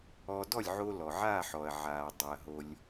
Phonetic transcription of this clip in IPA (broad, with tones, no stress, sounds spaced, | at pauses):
ɔ˧ d ɔ˥˩ lʲ ʕ o˧ l ɔ˩ ʕ aː˥˩ ħ ɔ˩ ɐ̯ ʕ aː˩ dˤ a˩ ɐ̯ ɦ o˩ lʲ